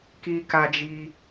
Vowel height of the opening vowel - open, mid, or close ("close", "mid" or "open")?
close